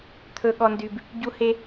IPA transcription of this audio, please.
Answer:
t̪ʰ ɵ˦ ɠ ɔ˦ n d y˦ b | ɟ u˦ h e˦

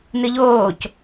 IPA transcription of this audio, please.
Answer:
n ɨ ʎ oː c

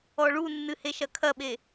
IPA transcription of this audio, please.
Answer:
ɔ ɭ u nː ɨ h e ʃ ɐ kʰ ɐ ɓ e

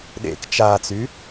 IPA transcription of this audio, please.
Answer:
ɗ ḛ k t͡ʃ a t͡s y

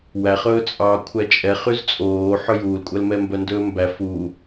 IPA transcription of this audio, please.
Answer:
w æ χ ɵː t͡sʼ ɑː kʷʰ æ t͡ʃʼ ɛ χ y z t͡sʼ oː ħ ɵ j uː l kʷʼ æ l m ɛ m b œ n d ɵː m b æ f u

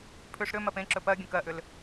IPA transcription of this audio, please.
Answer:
pʰ ʏ ʂ ɾ ʏ m ɜ p ẽ ǁ ɵ p ɜ ɡʲ ə̃ k ɜ ʔ ʏ l

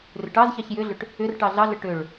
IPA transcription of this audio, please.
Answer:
r ʏ ʈ ɑ z ç ɑ ç j ʏ ɮ ʏ ʈ | ʏ r ʈ ɑ ɮ ɑ ɮ ə ʈ ʏ ɭ

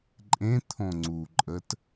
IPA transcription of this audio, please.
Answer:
ǃʼ ẽ t̪ʰ õ ŋ͡ǀ u ǃʼ ə t

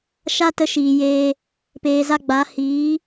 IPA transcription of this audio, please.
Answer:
ʃ a˦ t ə˧ ʃ iː˨ j eː˧ | p eː˨ z a˧ ɡ͡b a˨˦ h iː˨˦

